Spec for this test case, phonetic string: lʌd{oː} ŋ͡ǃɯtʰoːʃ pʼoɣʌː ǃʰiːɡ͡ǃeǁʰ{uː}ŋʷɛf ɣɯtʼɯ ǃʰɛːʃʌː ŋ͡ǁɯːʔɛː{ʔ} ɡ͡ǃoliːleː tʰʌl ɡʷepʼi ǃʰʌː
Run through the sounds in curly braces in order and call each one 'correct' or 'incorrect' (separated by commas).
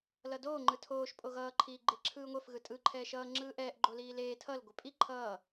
correct, incorrect, correct